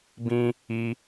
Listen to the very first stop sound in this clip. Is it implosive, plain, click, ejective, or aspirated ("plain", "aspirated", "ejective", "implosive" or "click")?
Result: plain